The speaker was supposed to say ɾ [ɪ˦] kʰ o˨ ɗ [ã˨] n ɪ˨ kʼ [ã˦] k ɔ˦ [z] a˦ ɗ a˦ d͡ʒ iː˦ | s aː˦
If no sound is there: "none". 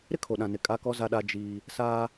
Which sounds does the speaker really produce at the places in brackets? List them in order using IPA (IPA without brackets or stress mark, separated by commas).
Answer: ɪ˦, ã˨, a˦, z